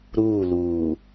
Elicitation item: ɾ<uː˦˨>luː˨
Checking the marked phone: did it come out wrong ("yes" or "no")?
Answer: no